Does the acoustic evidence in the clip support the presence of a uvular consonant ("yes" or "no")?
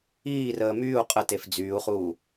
yes